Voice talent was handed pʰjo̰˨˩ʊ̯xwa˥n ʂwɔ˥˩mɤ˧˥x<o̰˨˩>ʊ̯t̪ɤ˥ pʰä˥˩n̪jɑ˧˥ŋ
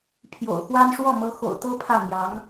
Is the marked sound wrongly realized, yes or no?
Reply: no